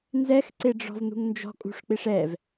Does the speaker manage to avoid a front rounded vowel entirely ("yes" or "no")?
yes